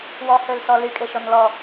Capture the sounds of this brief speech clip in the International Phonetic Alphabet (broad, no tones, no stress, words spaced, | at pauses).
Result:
wɔhølsɔ lykʼeʃɔnlɔ